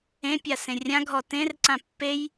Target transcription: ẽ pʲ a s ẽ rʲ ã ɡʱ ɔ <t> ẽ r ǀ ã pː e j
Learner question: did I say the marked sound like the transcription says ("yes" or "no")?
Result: yes